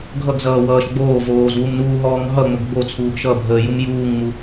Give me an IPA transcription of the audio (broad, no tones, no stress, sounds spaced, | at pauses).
ɡʱ ʌ ɡ z ʌː w ʌː ʃ ɡ͡b oː v oː z w u m n uː ɦ ɔː ŋ ɦ ʌ ŋ͡m o ɡ ɡ͡b o t͡sʰ uː ɡ ʃ ʌ bʱ əː j u m j uː ŋ ŋ͡m u